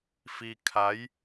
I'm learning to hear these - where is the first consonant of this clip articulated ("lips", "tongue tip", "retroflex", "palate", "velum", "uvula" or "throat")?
lips